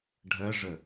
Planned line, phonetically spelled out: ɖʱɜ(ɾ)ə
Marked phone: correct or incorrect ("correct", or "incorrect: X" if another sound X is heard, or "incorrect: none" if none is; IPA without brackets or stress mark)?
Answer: incorrect: ʐ